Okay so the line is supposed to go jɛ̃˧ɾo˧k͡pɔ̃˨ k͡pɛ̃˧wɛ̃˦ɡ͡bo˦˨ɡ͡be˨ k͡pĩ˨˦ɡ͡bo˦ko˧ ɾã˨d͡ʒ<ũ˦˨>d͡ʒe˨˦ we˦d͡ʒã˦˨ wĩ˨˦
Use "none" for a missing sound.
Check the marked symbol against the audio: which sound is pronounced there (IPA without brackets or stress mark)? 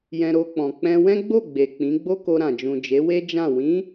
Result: ũ˨